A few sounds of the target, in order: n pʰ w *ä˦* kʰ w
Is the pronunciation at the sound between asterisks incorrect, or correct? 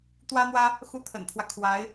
correct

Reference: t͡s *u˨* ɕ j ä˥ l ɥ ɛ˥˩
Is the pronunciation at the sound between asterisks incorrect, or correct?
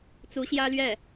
incorrect: u˧˥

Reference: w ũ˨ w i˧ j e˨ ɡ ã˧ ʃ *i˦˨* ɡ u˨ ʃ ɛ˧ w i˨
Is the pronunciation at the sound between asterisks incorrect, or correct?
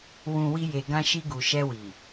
incorrect: i˧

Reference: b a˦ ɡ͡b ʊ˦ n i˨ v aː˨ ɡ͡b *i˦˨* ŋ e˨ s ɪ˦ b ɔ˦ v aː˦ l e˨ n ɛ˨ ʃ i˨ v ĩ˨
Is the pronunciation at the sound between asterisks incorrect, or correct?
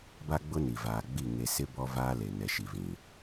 correct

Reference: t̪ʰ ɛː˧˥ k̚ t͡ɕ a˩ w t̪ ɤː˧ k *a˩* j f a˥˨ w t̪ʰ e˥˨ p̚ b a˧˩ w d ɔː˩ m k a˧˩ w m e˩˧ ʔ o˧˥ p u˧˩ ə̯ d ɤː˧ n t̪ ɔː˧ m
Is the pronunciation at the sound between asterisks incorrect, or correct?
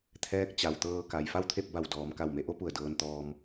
correct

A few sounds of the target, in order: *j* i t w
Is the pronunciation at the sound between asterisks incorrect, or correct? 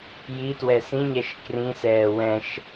correct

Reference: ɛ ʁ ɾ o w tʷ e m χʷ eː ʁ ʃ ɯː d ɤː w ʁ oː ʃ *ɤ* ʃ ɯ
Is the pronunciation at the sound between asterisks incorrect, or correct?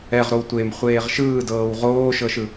correct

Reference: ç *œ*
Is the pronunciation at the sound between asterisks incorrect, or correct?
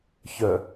correct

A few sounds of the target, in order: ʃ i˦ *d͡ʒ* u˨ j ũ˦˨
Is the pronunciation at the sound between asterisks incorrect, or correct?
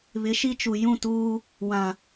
incorrect: t͡ʃ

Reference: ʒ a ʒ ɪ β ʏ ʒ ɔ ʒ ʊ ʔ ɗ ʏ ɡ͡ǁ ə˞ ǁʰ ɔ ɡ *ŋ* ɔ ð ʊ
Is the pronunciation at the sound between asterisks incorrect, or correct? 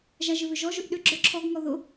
correct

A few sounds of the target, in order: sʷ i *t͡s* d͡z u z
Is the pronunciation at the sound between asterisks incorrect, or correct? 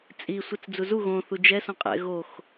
correct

